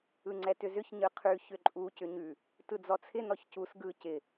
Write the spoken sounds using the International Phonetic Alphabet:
ɯŋ͡ǀɛtʏzʏç ɲɯqʰʉ çʏǃʼu cʏɲʉ | tɯd͡zɔt͡sʰɪ nɔçcus ɡɯ cɪ

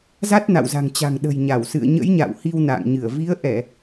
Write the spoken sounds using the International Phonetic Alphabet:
za˦˥t̚na̰˧˨wza̤˨˩ŋt͡ɕa̤˨˩ŋ ɗə̤˨˩jɲa˧˩wsɨ̰˧˨ə̯ ɲə̰˧˥jɲa̰˧˨w hi˧wna̰ː˧˨ŋɲɨ˧˩ə̯ vi˨˦ə̯ʔɛ˧˩˨

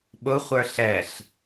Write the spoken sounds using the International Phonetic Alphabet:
ɓʊχʷə˞ ɬɛɬ

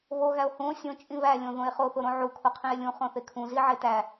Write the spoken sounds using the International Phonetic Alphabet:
βoɣæo̯ hũo̯ sʲõt͡ʃʼĩ βælʲõðõe̯ χoθoɾõ ʕukʰoqʰĩe̯ lʲũχõθe kʰũziʕe tæ

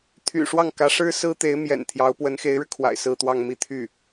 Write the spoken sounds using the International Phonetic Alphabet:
t̪ʰy̰˨˩ʂwɑ˥˩ŋkä˧˥ ʂɻ̩˥sɹ̩˥ t̪e˧˥ɪ̯mjɛ̰˨˩nt̪ʰjɑ˧˥ʊ̯ pwə˧˥nxe˧˥ɪ̯ɻɻ̩˧kʰwa̰˨˩ɪ̯ sɹ̩˥˧t̪wɑ˥˧ŋ mi˥˧t̪ʰy˥˩

